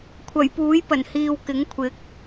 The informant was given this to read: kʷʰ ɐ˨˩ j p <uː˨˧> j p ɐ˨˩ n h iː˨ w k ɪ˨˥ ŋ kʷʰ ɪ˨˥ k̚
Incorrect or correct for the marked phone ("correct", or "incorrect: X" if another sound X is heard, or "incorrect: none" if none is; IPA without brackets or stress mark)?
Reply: incorrect: uː˨˥